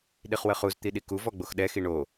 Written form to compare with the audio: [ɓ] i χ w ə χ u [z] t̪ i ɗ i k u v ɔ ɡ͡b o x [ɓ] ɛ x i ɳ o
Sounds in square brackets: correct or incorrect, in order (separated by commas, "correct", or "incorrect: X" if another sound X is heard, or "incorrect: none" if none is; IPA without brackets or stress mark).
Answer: incorrect: ɗ, correct, incorrect: ɗ